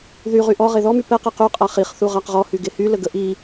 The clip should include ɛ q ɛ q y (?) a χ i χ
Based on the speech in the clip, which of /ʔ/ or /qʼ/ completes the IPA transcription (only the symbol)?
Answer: qʼ